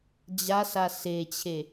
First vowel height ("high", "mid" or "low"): low